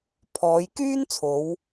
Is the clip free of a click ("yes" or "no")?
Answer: yes